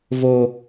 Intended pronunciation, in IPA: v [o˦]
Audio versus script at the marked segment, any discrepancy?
no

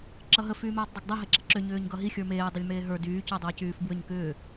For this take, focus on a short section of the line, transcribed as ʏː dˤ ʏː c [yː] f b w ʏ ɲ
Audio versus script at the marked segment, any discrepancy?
no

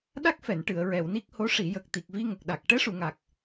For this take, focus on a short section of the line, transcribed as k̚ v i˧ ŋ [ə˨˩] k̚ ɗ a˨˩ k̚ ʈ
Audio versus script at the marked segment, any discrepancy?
no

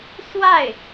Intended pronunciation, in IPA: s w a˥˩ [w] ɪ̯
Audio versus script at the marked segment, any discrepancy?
yes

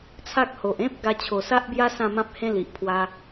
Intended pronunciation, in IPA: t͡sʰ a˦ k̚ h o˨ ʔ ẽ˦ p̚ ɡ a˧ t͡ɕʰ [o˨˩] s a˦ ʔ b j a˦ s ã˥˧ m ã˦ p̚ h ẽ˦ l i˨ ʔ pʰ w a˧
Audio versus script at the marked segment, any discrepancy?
no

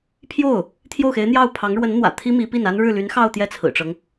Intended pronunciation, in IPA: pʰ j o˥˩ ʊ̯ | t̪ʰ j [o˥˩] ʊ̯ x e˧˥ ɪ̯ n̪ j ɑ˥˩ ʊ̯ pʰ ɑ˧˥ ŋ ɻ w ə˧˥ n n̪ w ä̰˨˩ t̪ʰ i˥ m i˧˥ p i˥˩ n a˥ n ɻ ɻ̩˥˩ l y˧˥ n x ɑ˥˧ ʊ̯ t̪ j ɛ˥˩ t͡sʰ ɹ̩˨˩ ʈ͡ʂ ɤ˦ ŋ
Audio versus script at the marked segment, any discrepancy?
no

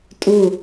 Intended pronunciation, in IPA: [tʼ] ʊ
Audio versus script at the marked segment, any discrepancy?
no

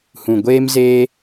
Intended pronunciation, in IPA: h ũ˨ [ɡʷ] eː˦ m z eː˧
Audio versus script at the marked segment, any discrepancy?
no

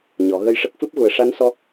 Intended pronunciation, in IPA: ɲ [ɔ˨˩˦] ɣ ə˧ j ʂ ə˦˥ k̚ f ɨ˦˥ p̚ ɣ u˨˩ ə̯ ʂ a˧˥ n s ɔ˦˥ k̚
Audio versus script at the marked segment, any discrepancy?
no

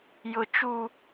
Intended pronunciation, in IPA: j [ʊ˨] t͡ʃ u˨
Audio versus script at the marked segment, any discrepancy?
no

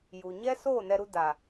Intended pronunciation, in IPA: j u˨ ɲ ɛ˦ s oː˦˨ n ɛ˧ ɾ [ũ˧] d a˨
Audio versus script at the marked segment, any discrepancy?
yes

